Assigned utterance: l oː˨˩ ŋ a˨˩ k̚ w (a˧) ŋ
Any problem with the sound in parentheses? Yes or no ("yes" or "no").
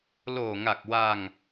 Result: no